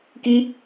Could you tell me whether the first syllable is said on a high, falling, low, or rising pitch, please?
high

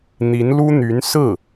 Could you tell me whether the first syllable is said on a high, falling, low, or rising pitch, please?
rising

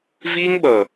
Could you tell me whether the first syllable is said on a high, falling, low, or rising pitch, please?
high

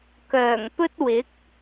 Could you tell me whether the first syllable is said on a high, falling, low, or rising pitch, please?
low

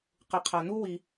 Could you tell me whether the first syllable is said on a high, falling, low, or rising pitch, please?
low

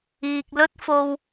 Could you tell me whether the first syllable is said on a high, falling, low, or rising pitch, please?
low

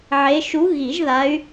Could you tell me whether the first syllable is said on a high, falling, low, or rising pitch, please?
rising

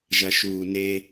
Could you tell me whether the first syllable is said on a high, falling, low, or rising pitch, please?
low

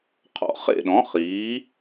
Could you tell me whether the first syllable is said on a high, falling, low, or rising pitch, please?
rising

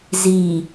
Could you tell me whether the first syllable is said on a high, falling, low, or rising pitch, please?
low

